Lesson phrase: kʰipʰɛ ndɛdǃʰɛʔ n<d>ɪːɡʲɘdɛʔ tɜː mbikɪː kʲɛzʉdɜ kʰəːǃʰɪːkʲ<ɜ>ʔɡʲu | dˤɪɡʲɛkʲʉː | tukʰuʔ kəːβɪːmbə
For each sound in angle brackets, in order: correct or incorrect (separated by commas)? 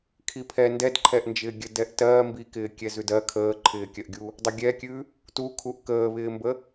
incorrect, correct